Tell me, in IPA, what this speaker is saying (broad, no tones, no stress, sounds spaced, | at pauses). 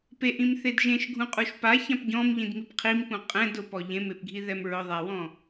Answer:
p e ʔ ĩ m θ e d ʒ ẽ ʃ ɡʱ ũ qʼ u ʃ p a ç ã p ɟ ɔ̃ m ʎ ĩ d m i p qʰ i m p ũ qʼ ɛ̃ d ʊ p ɔ ʎ ẽ m e p ɡʱ i ð ɛ m ɹ ʊ ðˤ a w ɔ̃